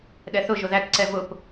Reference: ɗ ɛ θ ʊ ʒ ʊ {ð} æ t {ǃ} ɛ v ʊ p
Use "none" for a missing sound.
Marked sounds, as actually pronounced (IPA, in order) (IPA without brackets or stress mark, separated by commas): ð, ǀ